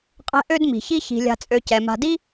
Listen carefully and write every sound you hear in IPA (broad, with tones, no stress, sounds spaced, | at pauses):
qʼ ɛ̤˦ ʔ ø˥ d m i̤˩ ç i˥ ç i̤˨ lʲ a̤˨ t͡sʼ ø˨ c ɛ˩ m a̤˨ d i˥